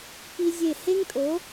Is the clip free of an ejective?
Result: no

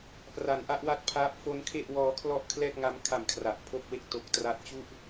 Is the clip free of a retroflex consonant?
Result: yes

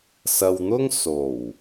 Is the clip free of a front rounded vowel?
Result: yes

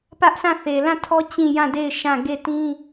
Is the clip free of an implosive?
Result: yes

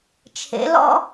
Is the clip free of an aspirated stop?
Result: no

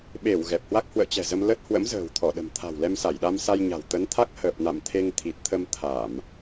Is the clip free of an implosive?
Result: no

